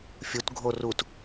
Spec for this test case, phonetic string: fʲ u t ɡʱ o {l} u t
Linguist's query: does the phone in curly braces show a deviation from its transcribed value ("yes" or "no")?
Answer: yes